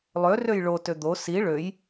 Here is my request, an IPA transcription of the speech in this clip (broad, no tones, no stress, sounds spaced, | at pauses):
lˠ ø r ø j ɭ o t ø d̪ o s i ɭ ø j